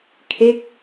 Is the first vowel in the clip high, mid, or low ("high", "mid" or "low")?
mid